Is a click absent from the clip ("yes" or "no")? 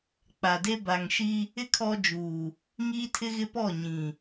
yes